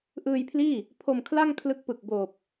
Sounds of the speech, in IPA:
ʔ ɯː˧ j pʰ l iː˥˩ | pʰ o˧ m kʰ l a˥˩ ŋ kʰ l ɯ˦˥ k̚ p ɯ˨˩ k̚ b oː˨˩ p̚

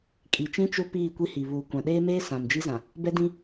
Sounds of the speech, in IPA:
kʼ i˨ t͡ʃ ĩ˦ t͡ʃ ʊ˦ p iː˦˨ kʷ i˦ h i˨ β uː˨ kʷ ã˨ ɗ eː˦ m eː˦ s ã˨ m d͡ʒ i˦ z ã˨ | b ɛ˦ d ĩ˦

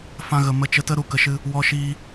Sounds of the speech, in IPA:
f ã˧ ɣ ə˨ m ə˧ t͡ʃ ə˧ t ə˦ ɾ u˨ k ə˨ ʃ ɨ˧ | w ɔ˧ ʃ iː˧

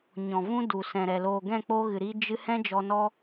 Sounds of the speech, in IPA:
ɲ ɔ̃˨ v ũ˦ d u˨ s ɛ̃˨ ɾ ɛ˨ l oː˨ ɡ ɛ̃˦˨ k͡p oː˧ ɣ ɨ˨ ɾ i˧ d͡ʒ ɨ˧ h ɛ̃˦ d͡ʒ ɔ˧ n ɔ˦

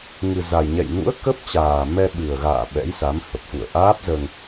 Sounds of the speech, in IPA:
ŋ ɨ˨˩ z a˨˩ j ɲ ɛ̰˧˨ j n ṵ˧˥ ə̯ k ə˦˥ p̚ t͡ɕ aː˨˩ m ɛ˧ ɓ ɨ˨˩ ə̯ ɣ a̰ː˧˨ ɓ ɛ̰˧˥ j s a˨˦ m h ə˨˩ p̚ x ṵ˧˨ ə̯ ʔ aː˦˥ p̚ z əː˧ ŋ

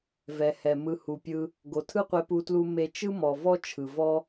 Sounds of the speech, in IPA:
v ɛ˨ h ɛ˨ m ɯ˨ h u˨ pʲ ɯ˧ | ɡ o˨ tʰ ɯ˦ qʷ e˧ p u˧ t l u˧ m e˧ t͡ʃ ɯ˦ m ɔ˨ v ɔ˦ t͡ʃʰ ɯ˨ v ɔ˦

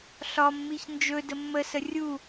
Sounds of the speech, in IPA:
ɬ ɒ mː i ç n d͡ʒ ɵ d ə mː ə s ə rʲ u

